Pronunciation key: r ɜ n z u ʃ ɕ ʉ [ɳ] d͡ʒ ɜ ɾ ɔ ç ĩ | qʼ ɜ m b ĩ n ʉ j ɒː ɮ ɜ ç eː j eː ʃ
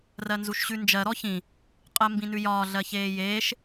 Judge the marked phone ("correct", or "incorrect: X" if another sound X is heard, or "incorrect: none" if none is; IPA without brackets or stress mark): incorrect: n